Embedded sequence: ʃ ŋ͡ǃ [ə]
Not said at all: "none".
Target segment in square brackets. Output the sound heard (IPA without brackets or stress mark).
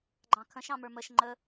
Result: ə